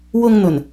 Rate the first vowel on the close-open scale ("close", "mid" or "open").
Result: close